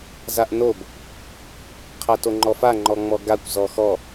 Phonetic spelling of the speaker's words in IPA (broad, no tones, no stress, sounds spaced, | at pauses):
z a ʔ n o b | qʰ a t o ŋ͡ǃ ɔ f a ŋ͡ǃ ɔ ŋ͡m ɔ ɡ a kʷ z ɔ x ɔ